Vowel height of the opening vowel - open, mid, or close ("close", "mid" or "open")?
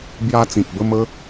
open